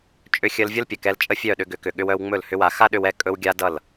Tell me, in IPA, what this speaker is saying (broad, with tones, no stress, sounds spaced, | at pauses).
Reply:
t͡ʃʼ ʏ˧ xʲ ə˧ l vʲ ʌ˦ l pʲ ə˨ k ɛ˧ l t͡ʃʼ ə˦ fʲ œ˦˨ ɗ ʏ˧ ɡ ʏ˨˦ k ʏ˨ ɠ ʏ˧ w œ˧ w ŋ͡m ɵ˦˨ l h ʏ˦ w a˧ x a˦ ɗ ʏ˧ w ɛ˦˨ kʼ ɵ˦ w ɡʲ a˦ d ʌ˦˨ l